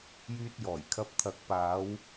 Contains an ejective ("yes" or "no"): no